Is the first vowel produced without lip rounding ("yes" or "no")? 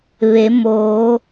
yes